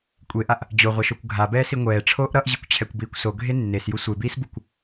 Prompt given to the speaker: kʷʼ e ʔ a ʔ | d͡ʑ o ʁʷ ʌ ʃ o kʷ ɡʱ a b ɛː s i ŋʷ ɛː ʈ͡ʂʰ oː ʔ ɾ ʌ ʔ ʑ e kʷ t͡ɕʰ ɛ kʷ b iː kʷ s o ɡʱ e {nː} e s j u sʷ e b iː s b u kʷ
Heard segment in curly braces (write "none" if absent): nː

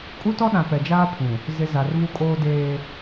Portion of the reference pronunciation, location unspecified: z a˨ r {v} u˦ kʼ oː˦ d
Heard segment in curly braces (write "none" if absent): v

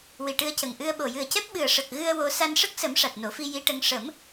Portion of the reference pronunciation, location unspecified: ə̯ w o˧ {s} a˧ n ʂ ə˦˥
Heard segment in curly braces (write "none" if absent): s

